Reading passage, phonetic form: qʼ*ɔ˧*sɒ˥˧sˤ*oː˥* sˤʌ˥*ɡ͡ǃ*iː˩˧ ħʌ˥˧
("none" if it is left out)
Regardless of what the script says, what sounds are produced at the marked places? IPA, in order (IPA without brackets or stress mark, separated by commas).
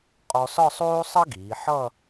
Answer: ɔ˧, oː˥, ɡ